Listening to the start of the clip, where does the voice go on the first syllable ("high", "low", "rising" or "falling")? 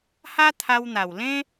high